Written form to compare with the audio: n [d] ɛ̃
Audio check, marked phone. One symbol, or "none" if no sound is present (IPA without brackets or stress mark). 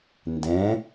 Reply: d